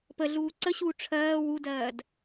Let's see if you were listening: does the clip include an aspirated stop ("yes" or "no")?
yes